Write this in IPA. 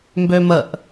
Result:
mbøməʔ

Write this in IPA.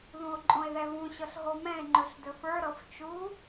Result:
ðũo̯ǃʼõe̯ðɛvũ ɕɤɬɦomɛ̃e̯ ŋ͡ǃɵɬdɵfə˞ ɾɤft͡ʃu

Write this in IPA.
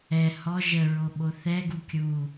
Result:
ɛ hɔ ʒəɹo ɓoθɛɡu kʲu

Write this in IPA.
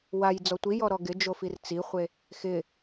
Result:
waj d͡zɔtʷijɔ ɾɔɡɪ d͡ʒofirt͡siχʷe | xɪ

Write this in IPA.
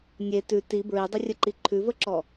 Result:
nʲe tʉ ti bɹidˤərʲəǃi ǃʰʉvəǁɔ

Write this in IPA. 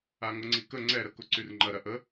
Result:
aŋʊŋ͡ǀikə ŋ͡ǀɛɾəkʊ ǀyrŋ͡ǃɐɾɐ ʔə

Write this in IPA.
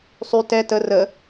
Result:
sˤy tɛ tə rə

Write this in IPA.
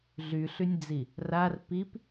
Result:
ɮyɬynʲd͡zi | rar pip

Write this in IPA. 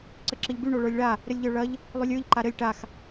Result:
ǀəǁɘʎby ɳoɭə˞lʲɭa | ɾɘlʲʎə˞ɭɐʎ | lˠylʲə˞ʎ ǃaɾɘlʲ ʈax

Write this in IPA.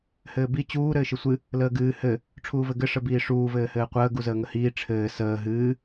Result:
hɘːbi t͡ɕuː ɾɘːʃɨsʷɨ | ləːɡɨː hɘ | ʈ͡ʂʰuːvɘɡɘ ʂəbiːʂuː vɘːhɘːqʷəː ɡuzəːŋəhiː ʈ͡ʂʰɘː səː ɦɨː

